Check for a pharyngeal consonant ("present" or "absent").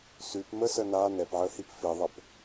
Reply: present